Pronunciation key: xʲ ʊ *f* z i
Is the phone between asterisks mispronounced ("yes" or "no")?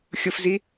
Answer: no